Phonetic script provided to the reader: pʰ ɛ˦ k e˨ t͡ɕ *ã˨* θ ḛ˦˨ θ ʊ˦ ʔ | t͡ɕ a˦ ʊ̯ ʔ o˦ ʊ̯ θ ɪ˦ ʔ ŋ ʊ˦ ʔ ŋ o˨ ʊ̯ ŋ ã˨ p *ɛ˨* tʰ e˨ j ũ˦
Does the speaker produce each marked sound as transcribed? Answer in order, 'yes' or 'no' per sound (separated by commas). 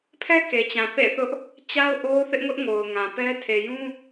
yes, no